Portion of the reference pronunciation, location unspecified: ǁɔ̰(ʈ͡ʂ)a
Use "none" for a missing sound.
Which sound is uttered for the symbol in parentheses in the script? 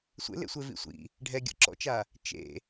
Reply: t͡ʃ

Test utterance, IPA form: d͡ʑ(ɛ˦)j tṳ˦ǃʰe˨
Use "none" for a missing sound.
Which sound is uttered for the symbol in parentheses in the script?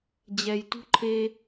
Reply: ɛ˩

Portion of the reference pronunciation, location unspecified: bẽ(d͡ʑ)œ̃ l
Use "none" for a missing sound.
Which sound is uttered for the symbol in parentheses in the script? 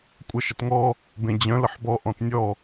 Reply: d͡ʑ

